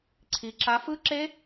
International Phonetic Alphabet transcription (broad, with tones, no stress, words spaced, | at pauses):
ǀʰi˨ ǁa˦˥ fɯ˦˥ǁe˦˥